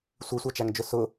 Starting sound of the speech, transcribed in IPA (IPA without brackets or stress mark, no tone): sʷ